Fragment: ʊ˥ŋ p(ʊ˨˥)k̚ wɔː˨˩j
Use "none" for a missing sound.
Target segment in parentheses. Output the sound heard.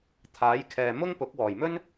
ʊ˨˥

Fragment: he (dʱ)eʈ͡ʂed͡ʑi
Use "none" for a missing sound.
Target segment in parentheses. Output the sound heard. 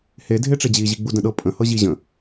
dʱ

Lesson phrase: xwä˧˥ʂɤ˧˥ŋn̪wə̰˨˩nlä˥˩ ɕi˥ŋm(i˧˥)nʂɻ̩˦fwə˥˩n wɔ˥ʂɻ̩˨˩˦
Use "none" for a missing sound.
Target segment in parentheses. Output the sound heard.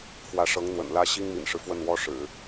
ḭ˨˩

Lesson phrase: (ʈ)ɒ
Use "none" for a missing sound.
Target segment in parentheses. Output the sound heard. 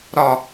ɾ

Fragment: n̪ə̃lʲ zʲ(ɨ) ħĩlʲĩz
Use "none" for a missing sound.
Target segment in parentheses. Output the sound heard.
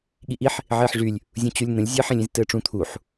ɨ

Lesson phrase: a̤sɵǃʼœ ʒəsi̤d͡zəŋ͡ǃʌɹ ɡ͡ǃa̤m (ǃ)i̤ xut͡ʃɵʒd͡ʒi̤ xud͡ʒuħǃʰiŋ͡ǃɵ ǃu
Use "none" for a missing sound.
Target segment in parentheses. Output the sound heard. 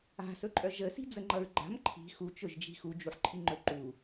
ǃʰ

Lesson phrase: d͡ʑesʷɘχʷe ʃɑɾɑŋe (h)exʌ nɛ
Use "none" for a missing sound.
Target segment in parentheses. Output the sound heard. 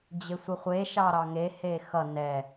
h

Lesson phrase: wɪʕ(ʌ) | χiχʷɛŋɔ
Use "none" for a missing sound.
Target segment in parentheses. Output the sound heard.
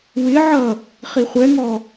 ʌ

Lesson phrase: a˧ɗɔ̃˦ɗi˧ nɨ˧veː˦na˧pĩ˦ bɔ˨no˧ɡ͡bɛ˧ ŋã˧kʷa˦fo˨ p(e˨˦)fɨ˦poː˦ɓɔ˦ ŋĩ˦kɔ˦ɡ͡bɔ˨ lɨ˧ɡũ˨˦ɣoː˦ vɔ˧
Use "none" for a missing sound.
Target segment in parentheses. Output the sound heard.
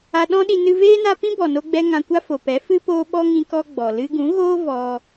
ɛ˨˦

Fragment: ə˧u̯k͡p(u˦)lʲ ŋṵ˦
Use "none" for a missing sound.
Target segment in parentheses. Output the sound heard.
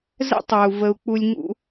u˦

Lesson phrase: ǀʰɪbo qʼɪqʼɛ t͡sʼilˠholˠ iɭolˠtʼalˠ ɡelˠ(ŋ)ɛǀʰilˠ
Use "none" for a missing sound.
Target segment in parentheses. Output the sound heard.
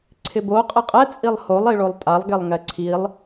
ŋ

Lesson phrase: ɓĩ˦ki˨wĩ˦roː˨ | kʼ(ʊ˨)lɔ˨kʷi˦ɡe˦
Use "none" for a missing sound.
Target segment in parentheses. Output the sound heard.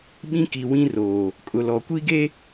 ʊ˨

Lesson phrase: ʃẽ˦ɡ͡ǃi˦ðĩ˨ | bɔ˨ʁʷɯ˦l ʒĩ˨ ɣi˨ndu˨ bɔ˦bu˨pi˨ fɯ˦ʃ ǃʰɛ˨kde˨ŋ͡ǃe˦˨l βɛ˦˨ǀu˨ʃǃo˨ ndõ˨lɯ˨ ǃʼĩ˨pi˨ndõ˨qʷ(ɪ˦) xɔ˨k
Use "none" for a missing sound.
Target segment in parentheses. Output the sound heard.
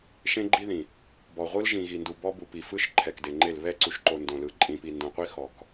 i˦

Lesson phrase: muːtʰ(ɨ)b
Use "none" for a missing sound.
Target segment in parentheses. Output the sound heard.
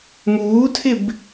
ɪ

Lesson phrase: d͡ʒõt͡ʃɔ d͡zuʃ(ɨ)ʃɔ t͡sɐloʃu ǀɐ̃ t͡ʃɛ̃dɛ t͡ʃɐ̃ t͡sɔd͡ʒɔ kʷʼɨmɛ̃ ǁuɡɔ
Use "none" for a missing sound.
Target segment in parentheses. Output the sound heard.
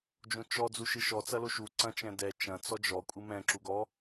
ɨ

